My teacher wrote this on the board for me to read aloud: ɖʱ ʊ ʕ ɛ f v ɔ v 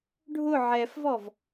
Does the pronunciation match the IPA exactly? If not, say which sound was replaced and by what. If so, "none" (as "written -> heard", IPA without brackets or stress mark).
none